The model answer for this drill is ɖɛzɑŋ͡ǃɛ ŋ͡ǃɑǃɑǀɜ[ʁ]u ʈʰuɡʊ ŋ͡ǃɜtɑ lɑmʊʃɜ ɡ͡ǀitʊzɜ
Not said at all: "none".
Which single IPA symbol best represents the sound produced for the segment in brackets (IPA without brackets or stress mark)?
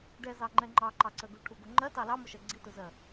ɡ